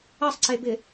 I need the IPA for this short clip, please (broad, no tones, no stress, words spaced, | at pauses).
ɐsˤǀebɪ